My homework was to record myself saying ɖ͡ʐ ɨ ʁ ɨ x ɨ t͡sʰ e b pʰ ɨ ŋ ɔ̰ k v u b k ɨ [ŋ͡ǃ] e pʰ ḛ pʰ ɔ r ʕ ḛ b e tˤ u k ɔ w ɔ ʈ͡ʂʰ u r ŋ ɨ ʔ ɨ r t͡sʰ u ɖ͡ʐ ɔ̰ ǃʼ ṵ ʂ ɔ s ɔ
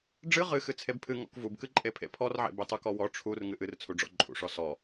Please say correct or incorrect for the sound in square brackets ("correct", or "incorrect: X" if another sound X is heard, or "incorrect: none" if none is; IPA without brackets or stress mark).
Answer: incorrect: ǃʼ